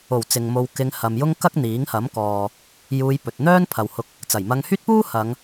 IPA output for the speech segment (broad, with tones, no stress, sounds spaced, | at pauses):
o˨˩ w t͡s ɪ˨ ŋ m o˧ w k ɪ˧ ŋ h ɐ˨ m j ʊ˥ ŋ k ɐ˥ k̚ n̪ iː˨˥ ŋ h ɐ˨˥ m k ɔː˨ | j uː˧ j p ɵ˨ t̚ n̪ œː˥ n pʰ ɐ˨ w h ʊ˧ k̚ | t͡s ɐ˨˩ j m ɐ˧ ŋ h yː˥ t̚ p uː˥ h ɐ˨˧ ŋ